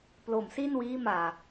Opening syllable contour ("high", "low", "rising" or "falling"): low